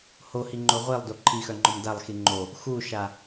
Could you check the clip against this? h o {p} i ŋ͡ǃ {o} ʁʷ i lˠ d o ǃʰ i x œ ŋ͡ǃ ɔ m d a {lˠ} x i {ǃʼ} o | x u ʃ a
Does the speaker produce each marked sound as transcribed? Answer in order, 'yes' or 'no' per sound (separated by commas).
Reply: no, yes, yes, no